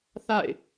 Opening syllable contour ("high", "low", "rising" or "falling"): falling